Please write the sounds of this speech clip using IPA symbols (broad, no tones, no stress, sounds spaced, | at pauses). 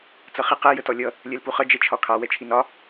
t͡s ʌ χ i q ɛ j ə t ɔ lʲ ʌ | lʲ ɛ l p u χ ʌ d͡ʒ ɛ t͡ʃʰ ɒ kʰ ɑ w ɛ t͡ʃʰ i n ɒ